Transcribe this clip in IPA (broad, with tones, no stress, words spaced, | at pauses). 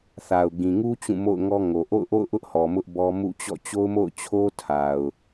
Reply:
θa˨ʊ̯ ɡĩ˨ŋu˦ t͡ɕũ˦˨mo̰˦˨ʊ̯ŋɔ˦ŋo˨ ʔo̰˦˨ʊ̯ʔo̰˦˨ʊ̯ʔʊ˦ʔhɔ˨ mʊ˦ʔbɔ˦ mṵ˦˨t͡ɕɔ̰˦˨ t͡ɕo˦ʊ̯mo̰˦˨ʊ̯t͡ɕʰo˦ tʰa˨ʊ̯